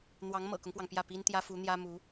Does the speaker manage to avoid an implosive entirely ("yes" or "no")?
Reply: yes